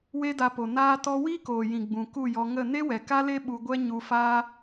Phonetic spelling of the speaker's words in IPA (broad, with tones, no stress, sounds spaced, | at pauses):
w e˦ d a˧ p o˨ n aː˦ t ɔ˦ w iː˦ k oː˨ j ĩ˨ ɡ͡b ũ˨ k u˦˨ j ɔ˧ ŋ ə˦˨ n e˦ w ɛ˨ k a˦ l e˦ ɓ u˧ ɡʷ ɛ˦ ɲ u˧ f aː˦